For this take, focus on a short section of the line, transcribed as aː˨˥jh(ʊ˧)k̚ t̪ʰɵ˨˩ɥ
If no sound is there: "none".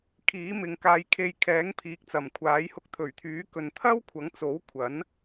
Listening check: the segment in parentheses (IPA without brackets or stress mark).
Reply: ʊ˧